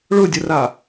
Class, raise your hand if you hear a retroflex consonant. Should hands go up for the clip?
yes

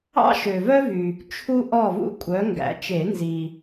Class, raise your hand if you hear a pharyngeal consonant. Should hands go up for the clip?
no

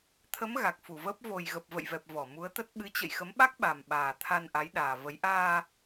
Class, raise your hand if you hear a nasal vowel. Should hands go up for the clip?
no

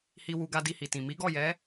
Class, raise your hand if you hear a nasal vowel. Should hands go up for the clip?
yes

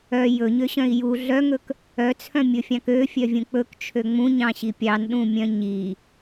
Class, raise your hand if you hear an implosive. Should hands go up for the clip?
yes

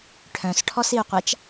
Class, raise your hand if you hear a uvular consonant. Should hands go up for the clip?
yes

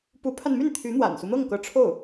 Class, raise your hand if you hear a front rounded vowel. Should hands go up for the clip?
yes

